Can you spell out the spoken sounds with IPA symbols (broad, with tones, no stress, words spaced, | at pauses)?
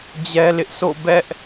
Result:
d͡ʑɛ˦lɪ˦ʔ so̰˦˨ bɛ˦ʔ